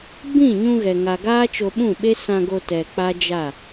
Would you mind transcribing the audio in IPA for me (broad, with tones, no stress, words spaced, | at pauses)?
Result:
bĩ˦˨ɲũ˧ ɣɛ˨ ŋa˨ ɡaː˦t͡ʃo˧ɓũ˦˨ɓe˦ sã˧ɡo˧ tɛ˨ k͡pa˦d͡ʒa˦˨